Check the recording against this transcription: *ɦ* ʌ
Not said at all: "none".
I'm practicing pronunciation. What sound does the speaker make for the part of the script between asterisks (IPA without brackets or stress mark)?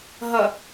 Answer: ɦ